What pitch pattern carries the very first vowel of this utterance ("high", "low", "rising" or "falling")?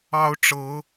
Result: high